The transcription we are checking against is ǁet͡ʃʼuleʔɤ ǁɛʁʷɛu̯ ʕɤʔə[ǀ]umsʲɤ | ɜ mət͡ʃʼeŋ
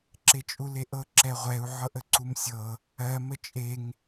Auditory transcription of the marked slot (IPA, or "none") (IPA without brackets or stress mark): ǀ